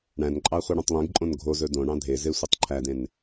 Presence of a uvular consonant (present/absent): present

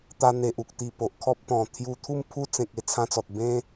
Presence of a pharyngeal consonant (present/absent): absent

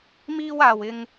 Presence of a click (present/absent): absent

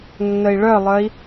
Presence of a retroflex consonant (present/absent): present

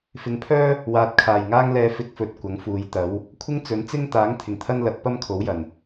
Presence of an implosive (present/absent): absent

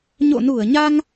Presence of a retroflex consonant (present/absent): absent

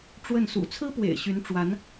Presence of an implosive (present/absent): absent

